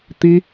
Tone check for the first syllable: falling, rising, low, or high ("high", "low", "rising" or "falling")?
high